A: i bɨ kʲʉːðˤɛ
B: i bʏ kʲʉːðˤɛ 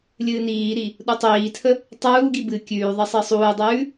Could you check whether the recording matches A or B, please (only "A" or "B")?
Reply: A